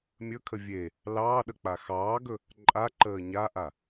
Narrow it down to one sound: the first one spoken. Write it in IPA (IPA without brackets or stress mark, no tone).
mʲ